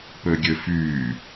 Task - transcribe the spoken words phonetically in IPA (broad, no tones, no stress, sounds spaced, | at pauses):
p ø ɡʲ ø f yː